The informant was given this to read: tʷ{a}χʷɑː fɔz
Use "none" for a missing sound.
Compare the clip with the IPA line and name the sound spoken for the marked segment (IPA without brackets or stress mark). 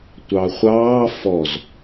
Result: ɑ